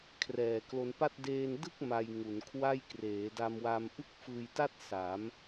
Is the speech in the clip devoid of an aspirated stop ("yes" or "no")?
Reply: no